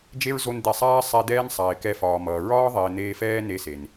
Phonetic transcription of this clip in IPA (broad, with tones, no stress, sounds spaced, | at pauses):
d͡ʒ e˦ ɹ z o˧ n d̪ ɛ˨ sˤ aː˧ sˤ ɛ˧ d̪ ɛː˦ n sˤ a˨ ɪ̯ k ɛ˧ f ɒː˨ m ʌː˨ ɹ ɒː˦ ðˤ eː˨ n̪ eː˧ f ɛː˦ n e˧ s e˨ n